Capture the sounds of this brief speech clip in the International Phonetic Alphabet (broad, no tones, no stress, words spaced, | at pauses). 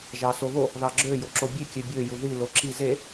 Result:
ʒɑsoβo | ðɑɡ͡ǁø joǁobʲe kʲøbʲø juði loǁi ze